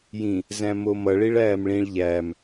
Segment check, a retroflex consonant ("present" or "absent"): present